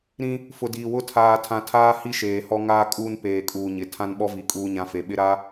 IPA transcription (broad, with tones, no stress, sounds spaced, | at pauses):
ɾ ĩ˦ | f ʊ˨ d iː˨ w ʊ˦˨ tʰ aː˨ tʰ ã˨ tʰ aː˦ h i˦ ʃ eː˨ h ɔ˦ ŋ aː˦ kʼ uː˦ n p eː˨ kʼ uː˨ ɲ ɪ˨ tʰ ã˦ n ɓ ɔ˦ v i˨ kʼ uː˦ ɲ ã˦ f e˨ ɓ ɪ˦ ɾ a˦